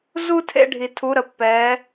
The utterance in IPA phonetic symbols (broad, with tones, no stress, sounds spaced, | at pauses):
z u˥ tʰ ḛ˥ ɖʱ i˧ tʰ u˧˥ ɾ ə˧˥ pː ɛ˧˥